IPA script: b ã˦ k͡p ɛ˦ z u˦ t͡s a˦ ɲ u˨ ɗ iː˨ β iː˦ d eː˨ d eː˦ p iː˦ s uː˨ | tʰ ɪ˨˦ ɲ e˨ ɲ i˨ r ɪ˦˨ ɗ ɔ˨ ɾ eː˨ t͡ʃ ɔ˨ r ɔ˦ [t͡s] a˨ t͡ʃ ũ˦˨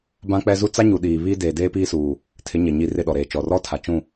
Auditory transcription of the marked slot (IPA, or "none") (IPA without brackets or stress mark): tʰ